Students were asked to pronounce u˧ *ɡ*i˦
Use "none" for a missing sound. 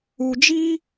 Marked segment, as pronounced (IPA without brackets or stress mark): d͡ʒ